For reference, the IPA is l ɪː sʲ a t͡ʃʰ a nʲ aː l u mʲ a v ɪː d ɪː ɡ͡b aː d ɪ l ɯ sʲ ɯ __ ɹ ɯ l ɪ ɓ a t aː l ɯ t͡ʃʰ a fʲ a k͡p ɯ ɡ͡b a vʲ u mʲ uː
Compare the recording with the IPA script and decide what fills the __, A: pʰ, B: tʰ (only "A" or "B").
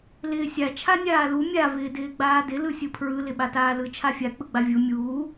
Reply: A